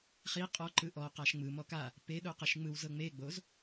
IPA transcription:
χi qʼɔǃɯ ʔɔqaʃ ŋ͡mɯmɔ ka | peɗoqeʃ ŋ͡mɯwzɤ ŋ͡meɡ͡boz

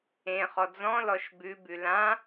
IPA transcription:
ẽχɔ d͡zɔ̃ lɔʃbʉbʉ lã

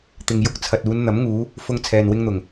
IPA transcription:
t̪ɪ˨ŋjʊ˧k̚ t͡sʰɐ˨t̚uː˨˧nn̪ɐ˨˥mŋuː˨˧ | fʊ˧ŋ t͡sʰɛː˨nwɪ˧ŋn̪ʊ˨˩ŋ

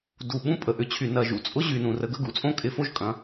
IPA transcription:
du˨ ɓũ˦pʼə˨ʔʏ˨˦t͡ɕʰy˨ nɐ˨ʒṵ˨t͡sʼʊ˦ ʑy˨nũ˨rə˨˦ɡ ə˨˦ɡṵ˨t͡sʼõ˦ kʼɪ˨˦fo˦ʒkʼɐ̃˨˦

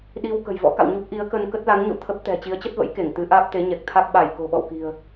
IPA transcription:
ɗi˧w kə̤˨˩jvɔ̰˧˥ka̰˧˨wɲu˦˥p̚ ʔi˨˦ə̯kə˧n kə˦˥t̚la˨˦ŋɲo̰˧˨ t̪ʰə˦˥p̚t̪ɛ̤˨˩ t͡ɕi˨˦ə̯t͡ɕə˦˥t̚və̰˧˥j ke˧˩ŋt̪ɨ˨˦ʔaː˦˥p̚ t̪e˨˦ɲɛ˨˩k̚t̪ʰa˦˥k̚ ɓa˧˩j ko̤˨˩ɓɔ̰˧˨wki̤˨˩ə̯

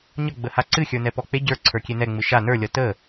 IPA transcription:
ɲʌɡ͡bəha ǀɨxʲə˞nɛpɔ k͡pe ɟə˞ǀʰə˞kʲe nɛŋ͡mɨ ʃa nə˞lʲʌ tə

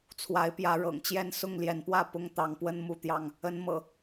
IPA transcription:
t͡sʰwa˨˦ɪ̯pjä˨˦ ɻɤ̰˨˩ŋt͡ɕjɛ˥˨n sʊ˥˨ŋljɛ˨˦npwä˥˨ pʊ˦ŋ t̪ɑ˨˦ŋpwə˦n mu˥˨t̪jɑ˥˨ŋ | ə˨˦n mɤ̰˨˩

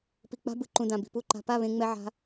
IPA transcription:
pi˨k͡pa̤˦bɯ˨ǃũ˨ dã˨bi̤˨pu˦˨ǃa̤˧ pa˦˨βẽ˧ŋ͡mɛ˧ ʕa̤˦

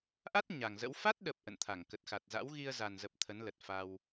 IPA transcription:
ʔa˦˥t̚ ɲa˨˩ŋzə̰˧˥w fa˦˥t̚ɗə˨˩p̚ ʔə̰˧˨nt̪ʰa˧˩ŋkə˨˩t̚ xa˨˩t̚za̰˧˥w ɣi˧ə̯za˨˩nzə˨˩p̚ t̪ʰə˨˦nlə˨˩t̚fa˧w

